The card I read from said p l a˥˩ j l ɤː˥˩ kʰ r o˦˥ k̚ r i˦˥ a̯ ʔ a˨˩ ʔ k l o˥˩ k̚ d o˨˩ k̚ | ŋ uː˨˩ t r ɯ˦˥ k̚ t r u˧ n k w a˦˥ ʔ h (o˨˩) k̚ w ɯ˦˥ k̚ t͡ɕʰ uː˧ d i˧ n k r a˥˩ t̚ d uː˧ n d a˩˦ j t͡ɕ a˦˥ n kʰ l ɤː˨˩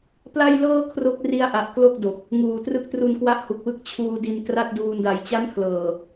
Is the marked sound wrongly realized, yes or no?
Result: yes